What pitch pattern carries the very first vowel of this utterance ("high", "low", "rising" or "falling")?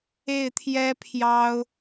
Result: falling